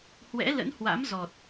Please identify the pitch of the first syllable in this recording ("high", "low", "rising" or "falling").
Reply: rising